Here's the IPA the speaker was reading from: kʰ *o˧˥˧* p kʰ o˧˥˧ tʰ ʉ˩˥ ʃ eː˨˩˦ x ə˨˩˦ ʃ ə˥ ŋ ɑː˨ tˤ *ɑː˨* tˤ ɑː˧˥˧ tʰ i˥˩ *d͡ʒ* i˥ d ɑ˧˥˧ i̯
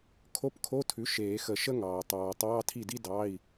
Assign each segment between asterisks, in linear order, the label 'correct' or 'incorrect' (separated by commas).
correct, correct, incorrect